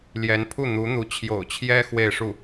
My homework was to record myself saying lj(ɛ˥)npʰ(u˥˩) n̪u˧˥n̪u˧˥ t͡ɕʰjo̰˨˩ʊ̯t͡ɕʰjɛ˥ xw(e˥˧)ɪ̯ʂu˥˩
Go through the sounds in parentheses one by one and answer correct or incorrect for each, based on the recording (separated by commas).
incorrect, correct, correct